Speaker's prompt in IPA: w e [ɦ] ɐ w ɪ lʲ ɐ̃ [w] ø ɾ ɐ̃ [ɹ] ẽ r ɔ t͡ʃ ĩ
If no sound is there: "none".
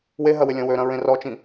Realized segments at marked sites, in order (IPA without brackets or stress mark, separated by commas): ɦ, w, ɹ